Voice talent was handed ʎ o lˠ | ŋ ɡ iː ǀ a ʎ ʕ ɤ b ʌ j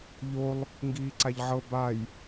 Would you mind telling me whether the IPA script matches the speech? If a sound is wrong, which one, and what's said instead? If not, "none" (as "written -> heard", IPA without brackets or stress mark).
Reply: ʌ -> a